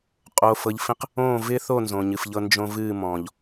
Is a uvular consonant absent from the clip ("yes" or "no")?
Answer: no